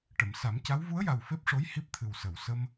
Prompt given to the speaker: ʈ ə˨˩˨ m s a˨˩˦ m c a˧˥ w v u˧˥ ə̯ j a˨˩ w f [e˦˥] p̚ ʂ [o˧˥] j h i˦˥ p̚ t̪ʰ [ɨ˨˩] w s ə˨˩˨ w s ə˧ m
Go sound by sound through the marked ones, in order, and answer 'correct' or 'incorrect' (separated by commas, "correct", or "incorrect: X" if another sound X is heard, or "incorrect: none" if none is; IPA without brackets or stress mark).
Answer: correct, correct, correct